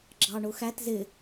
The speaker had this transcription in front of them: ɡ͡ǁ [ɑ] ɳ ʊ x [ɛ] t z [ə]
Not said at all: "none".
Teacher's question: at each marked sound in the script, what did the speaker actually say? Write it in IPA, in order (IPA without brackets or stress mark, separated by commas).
ɑ, æ, ɪ